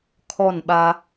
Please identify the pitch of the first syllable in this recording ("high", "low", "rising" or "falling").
falling